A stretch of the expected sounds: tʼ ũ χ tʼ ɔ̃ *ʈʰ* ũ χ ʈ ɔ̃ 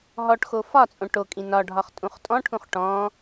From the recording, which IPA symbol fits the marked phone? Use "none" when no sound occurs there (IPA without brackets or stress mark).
ʈʰ